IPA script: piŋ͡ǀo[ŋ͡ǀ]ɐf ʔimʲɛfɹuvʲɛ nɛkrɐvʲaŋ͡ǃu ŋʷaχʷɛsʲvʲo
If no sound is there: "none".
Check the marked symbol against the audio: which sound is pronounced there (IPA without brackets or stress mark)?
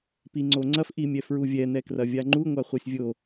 ŋ͡ǀ